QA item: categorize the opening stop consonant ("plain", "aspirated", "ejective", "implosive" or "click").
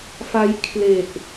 aspirated